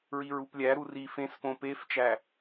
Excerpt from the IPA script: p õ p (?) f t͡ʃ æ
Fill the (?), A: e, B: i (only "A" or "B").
A